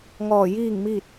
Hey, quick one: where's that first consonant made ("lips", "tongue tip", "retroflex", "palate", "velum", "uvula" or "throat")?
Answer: velum